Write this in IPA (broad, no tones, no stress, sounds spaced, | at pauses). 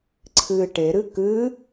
ǀʰ ɨ ʈ e ɾ ɨ k ɨ